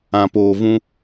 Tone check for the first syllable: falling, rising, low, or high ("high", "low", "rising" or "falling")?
low